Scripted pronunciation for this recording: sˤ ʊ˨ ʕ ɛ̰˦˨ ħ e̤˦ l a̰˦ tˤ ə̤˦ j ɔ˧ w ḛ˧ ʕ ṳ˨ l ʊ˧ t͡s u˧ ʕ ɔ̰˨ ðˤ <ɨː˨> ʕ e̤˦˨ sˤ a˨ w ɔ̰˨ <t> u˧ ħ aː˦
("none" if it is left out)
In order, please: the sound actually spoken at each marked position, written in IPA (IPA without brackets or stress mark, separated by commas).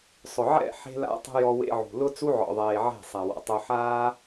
eː˨, tˤ